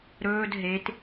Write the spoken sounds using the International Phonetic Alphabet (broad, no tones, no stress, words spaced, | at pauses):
ɾɵːd ɦet